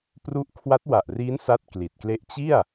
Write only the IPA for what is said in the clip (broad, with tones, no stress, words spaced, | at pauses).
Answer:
pru˦˥ʔ kʰwa˦˥t̚wa˨˩ʔriː˦˥n sa˥˩t̚kli˨˩t̚kle˥˩ʔ t͡ɕi˥˩a̯